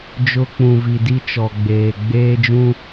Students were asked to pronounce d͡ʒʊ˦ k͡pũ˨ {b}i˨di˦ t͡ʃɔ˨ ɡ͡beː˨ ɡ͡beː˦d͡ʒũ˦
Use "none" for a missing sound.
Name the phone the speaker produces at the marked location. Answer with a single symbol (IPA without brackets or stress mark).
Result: v